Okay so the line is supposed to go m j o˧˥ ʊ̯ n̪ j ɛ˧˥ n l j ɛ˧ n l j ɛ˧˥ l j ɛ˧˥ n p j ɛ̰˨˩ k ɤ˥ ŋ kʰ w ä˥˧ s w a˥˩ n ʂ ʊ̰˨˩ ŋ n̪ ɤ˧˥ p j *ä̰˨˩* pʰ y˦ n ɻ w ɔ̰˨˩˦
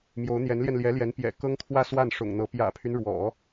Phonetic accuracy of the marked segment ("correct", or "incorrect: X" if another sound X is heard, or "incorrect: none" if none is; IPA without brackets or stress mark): correct